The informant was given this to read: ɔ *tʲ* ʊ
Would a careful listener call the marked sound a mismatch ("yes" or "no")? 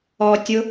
no